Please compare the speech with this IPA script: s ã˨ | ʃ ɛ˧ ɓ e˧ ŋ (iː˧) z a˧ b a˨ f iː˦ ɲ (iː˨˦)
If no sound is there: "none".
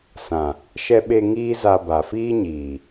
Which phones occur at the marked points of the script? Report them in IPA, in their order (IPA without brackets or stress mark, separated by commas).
iː˦, iː˨